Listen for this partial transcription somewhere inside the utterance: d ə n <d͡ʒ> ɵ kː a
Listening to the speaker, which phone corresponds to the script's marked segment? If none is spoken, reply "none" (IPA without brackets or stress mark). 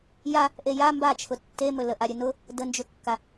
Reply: d͡ʒ